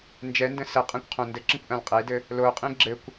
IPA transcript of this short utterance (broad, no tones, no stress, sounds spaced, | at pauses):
n d͡ʒ ɛ n d ə̃ s ə qʼ ã kʷ qʰ õ n d ɘ ǁ ə̃ kʷ ʔ ã l qʼ e d ɘ | l o qʼ ĩ ɡ͡ǁ ɘ kʷ